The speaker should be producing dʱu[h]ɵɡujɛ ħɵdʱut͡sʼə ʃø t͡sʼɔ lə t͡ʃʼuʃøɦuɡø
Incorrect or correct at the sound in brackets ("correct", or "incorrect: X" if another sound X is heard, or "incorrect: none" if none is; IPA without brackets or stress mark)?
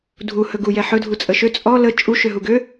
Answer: correct